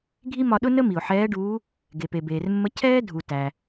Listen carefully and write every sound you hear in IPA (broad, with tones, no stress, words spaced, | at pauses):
ɡʱi˥ mɒ˧ɗʊ˥nə˥ mi˩ʊ̯ħɛː˧˥ɖuː˧˥ | ɡe˩pe˩beː˩rmːə˧˥ cʰɛː˥dʱu˩ tæ˩